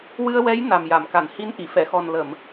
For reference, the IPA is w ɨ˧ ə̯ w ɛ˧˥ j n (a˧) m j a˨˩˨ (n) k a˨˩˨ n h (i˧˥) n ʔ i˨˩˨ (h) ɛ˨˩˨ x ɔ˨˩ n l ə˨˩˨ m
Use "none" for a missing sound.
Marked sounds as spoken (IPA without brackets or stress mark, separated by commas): a˨˩, m, i˧˥, f